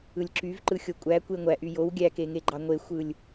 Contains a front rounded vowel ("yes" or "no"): yes